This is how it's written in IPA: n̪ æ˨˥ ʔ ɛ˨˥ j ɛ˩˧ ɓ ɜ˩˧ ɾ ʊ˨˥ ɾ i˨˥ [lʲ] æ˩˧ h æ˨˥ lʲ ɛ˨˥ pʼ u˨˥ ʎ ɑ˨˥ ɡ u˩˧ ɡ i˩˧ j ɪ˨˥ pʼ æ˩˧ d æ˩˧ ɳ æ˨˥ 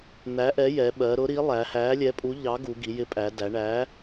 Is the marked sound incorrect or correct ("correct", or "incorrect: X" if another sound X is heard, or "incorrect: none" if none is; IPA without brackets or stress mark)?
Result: incorrect: lˠ